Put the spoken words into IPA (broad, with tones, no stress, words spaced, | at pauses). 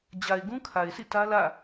d͡ʑa˨ɪ̯ ɡũ˦kʰa˨ɪ̯sḭ˦˨ tä˦lä̰˦˨